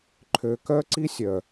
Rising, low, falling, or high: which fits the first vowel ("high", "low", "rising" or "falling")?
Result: low